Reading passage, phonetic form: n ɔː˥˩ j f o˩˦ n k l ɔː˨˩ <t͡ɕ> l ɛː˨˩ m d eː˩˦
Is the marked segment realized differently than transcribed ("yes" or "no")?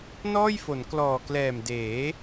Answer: yes